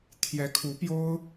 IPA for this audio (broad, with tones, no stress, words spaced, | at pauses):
t̪ʰjɛ˧˥kʰu˧˥pjo˥ʊ̯